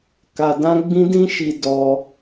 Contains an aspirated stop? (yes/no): no